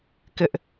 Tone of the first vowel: high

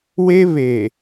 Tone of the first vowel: high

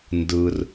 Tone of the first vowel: low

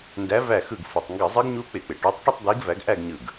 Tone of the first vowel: rising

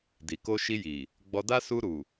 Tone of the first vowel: low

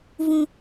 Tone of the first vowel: high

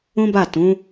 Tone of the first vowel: high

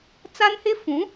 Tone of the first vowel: high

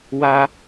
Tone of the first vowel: high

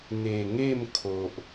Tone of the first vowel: low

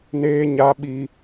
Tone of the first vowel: high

